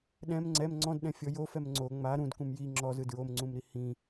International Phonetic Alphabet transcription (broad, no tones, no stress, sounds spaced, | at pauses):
ɗ ɛ̃ m ŋ͡ǀ ɛ m ŋ͡ǀ ɔ̃ d ɗ ɛ̃ fʲ ɔ j o f ɛ m ŋ͡ǀ o ŋ͡m a ɾ ũ d k ũ m j i ŋ͡ǁ ɔ z ɯ d ɹ o m ŋ͡ǀ ũ m ɾ i h ĩ